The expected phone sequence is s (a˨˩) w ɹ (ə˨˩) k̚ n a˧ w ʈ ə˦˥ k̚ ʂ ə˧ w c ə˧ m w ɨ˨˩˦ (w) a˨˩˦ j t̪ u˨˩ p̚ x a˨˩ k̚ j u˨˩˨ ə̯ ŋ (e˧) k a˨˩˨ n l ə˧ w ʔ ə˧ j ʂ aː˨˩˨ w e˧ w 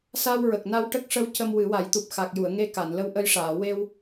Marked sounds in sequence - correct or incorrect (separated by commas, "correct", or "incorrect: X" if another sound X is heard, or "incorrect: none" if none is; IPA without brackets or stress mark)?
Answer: incorrect: a˧, correct, correct, correct